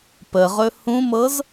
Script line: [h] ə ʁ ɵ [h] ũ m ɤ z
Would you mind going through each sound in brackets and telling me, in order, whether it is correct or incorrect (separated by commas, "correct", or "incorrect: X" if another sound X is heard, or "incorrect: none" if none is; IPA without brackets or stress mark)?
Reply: incorrect: p, correct